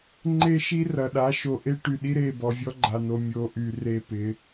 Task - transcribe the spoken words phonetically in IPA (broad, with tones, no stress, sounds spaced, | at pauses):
ŋ͡ǃ e˦ ʃ i˦ r ɐ˨ ɗ a˨˦ ʃ o˨ ʔ e˦ ʈ y˨ ɗ i˦ ɾ e˦˨ b ɔ˨ vʲ ɔ˦ ɡ͡ǃ a˨ n o˨ mʲ o˨ ʔ y˨ r e˦ p ɪ˨˦